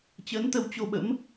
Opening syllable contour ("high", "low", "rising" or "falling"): rising